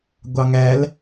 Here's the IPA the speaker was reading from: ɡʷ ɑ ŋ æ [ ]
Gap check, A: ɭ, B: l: B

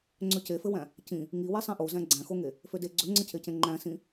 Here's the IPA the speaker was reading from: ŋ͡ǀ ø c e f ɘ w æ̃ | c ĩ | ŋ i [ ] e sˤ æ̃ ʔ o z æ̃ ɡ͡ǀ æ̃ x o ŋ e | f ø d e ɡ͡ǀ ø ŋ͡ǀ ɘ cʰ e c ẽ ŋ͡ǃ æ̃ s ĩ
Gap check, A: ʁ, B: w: B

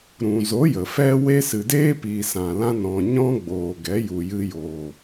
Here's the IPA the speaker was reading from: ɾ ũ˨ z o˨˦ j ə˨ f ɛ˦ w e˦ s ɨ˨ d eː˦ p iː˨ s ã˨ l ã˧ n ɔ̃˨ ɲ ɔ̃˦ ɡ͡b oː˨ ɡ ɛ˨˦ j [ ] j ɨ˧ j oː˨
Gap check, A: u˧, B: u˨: B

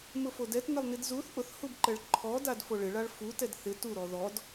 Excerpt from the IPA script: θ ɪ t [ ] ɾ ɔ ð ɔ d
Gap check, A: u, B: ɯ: A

